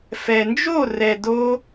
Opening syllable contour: low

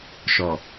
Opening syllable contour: low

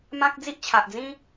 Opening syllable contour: high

